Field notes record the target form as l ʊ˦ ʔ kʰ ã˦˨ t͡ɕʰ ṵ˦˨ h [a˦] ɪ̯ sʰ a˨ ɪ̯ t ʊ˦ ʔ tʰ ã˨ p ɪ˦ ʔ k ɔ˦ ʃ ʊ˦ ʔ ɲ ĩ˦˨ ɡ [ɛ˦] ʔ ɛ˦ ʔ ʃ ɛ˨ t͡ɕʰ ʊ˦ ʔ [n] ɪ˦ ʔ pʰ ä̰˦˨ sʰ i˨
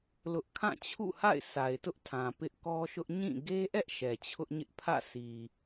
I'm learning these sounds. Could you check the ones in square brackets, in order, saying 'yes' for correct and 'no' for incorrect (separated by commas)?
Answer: no, no, no